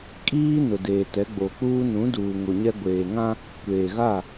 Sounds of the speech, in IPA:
kʼ iː˦ n ʊ˨ d eː˨ t ɛ˨˦ ɡ͡b o˨ k͡p uː˦ n ũ˨˦ d uː˨ ŋ o˨ ɲ ɛ˦ ɡʷ eː˨ ŋ ã˦ | kʷ eː˨ ɣ a˦˨

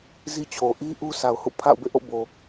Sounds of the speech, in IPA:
z i˦ t͡ɕʰ o˨ ʔ i˦ ʔ u˦ sʰ a˨ ʊ̯ h ṵ˦˨ pʰ a̰˦˨ ʊ̯ b ḛ˦˨ ʔ o̰˦˨ b o˨

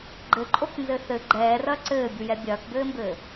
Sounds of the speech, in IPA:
ɡ͡ǃ ɘ ǃʼ o k n z ɘ θ ɘ ɡ͡ǃ ɛː r ɐː ǀ ɘː bʲ u j ɛ bʲ ɐː k b ɘː m b ɘː

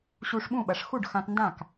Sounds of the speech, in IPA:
ɕ u˧ ʂ ɓ ũ˥˩ ɓ ɐ˩ ʂ x u˥˩ ɖ x ã˧ t n d ã˥˩ k

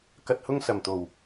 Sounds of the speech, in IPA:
k ɐ˧ t̚ h ʊ˥ ŋ s ɐ˨˩ m t̪ o˨˩ w

